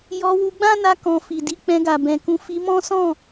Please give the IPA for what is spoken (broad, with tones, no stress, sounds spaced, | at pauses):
j ɔ˧ w u˧ ɡ͡b ã˦ n a˧ k ɔ̃˨ f i˨ d i˨˦ k͡p ɛ̃˧ ɡ a˨ b ɛ̃˨ k ũ˧ f i˧ m ɔ̃˦ s ɔ̃˦˨